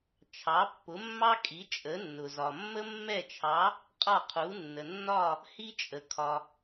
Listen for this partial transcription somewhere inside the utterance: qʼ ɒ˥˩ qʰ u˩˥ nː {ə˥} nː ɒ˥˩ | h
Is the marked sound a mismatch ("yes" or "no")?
yes